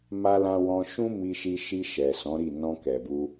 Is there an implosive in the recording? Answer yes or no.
no